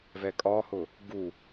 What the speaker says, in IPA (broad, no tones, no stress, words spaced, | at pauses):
vɛkʼɒhʊ | ɡu